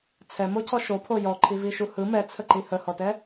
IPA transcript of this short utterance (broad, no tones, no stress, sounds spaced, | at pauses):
t͡sʰ ɛ m o cʰ ɔ ʃ o pʰ o j ɔ ǃʰ i v i ʃ u h ɯ m ɛ t͡sʰ ə ǃ i h ə h ɔ t ɛ